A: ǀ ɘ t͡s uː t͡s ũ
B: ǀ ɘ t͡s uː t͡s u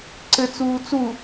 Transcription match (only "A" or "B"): B